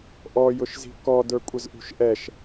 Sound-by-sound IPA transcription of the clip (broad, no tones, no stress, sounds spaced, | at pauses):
ʔ ɔ j ʊ ʃ z i̤ k ɔ d ə˞ kʷʼ ə z ʔ ṳ ʃ ʔ ɛ ʃ